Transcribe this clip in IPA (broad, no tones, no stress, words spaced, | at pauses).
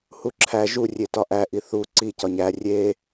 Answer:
huǁʰæ ʒu rʲetɒʔæ ʔiθu ǀi cɒɲæ rʲe